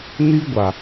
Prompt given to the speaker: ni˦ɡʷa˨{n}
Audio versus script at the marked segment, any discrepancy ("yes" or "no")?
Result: yes